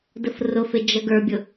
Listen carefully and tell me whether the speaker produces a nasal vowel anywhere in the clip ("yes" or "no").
no